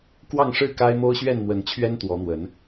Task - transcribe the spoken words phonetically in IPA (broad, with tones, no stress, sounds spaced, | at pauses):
k w ɑ˥˨ ŋ ʂ ɻ̩˥˨ k a˦ ɪ̯ m o˦ ʊ̯ ɕ ɥ ɛ˥˨ n m w ə˨˦ n t͡ɕʰ ɥ ɛ˦ n t̪ w ɔ˨˦ n̪ w ə˨˦ n